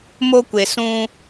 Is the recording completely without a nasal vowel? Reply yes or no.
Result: no